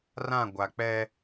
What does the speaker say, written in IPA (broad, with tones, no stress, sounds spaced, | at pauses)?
r ã˦˨ ɡʷ a˨ k͡p ɛ˦